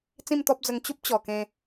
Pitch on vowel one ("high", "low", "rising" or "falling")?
falling